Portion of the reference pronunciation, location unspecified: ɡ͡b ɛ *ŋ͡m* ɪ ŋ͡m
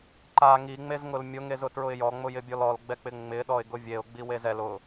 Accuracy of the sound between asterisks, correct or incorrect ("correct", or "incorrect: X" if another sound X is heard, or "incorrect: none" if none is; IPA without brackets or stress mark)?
incorrect: k͡p